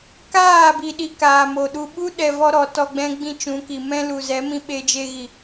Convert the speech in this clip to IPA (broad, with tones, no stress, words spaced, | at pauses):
kaː˦˨bi˨ ɗi˧kaː˨mo˨ɗu˧ ɓu˦ɗɛ˨ vɔ˦ɾɔ˨ tɔ˧ɡ͡bɛ̃˦ɡ͡bĩ˦ t͡ʃũ˨˦ki˨ mɛ̃˦lu˨zɛ˨˦mĩ˦ ɓe˦d͡ʒe˦ɣi˨